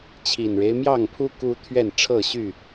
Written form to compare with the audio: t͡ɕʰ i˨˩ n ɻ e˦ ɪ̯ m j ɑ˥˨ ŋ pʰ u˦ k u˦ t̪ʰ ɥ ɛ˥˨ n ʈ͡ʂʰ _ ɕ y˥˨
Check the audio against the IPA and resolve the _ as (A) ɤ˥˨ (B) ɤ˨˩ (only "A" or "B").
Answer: A